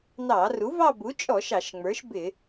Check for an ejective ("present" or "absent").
present